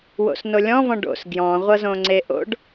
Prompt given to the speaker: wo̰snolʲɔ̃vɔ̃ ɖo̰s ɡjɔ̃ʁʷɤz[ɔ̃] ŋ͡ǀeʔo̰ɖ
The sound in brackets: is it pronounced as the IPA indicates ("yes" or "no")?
no